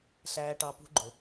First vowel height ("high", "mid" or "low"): low